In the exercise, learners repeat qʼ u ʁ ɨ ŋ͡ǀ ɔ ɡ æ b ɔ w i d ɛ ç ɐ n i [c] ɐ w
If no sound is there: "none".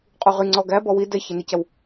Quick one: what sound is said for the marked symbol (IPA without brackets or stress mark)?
c